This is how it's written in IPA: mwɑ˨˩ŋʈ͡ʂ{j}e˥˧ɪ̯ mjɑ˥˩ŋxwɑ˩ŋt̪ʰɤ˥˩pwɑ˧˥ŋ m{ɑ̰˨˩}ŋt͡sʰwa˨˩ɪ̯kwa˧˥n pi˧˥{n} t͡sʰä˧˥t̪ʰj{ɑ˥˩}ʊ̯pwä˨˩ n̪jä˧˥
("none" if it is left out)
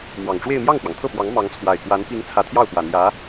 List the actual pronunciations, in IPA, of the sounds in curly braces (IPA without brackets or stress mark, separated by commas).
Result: w, ɑ˧˥, ŋ, ɑ˥˩